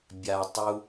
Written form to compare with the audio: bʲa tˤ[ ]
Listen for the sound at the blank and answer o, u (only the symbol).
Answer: u